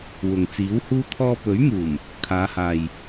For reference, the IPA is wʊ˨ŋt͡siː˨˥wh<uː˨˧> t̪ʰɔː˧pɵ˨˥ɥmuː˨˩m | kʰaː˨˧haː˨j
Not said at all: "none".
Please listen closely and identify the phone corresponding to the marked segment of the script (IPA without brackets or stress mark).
uː˥